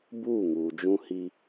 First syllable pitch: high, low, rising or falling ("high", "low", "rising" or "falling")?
falling